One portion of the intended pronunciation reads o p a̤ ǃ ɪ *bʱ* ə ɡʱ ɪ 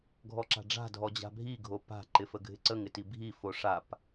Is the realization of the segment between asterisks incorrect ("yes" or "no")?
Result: yes